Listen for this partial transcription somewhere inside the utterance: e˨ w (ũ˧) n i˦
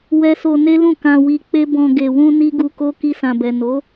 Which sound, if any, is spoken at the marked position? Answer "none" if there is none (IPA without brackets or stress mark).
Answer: ũ˧